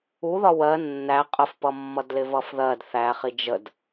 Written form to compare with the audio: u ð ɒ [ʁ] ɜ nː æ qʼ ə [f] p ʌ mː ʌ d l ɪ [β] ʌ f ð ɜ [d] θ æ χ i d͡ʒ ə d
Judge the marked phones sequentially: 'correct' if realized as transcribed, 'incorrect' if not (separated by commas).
incorrect, correct, incorrect, correct